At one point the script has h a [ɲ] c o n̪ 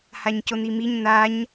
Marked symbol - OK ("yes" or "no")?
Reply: yes